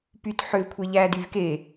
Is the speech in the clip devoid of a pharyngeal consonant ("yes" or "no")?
no